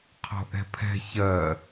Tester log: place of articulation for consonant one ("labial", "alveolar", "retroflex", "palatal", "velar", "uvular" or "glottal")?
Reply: uvular